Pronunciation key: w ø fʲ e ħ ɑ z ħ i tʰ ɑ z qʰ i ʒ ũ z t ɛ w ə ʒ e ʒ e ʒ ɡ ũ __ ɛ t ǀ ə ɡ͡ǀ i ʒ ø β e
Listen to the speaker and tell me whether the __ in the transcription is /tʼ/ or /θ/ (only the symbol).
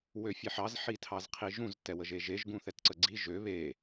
θ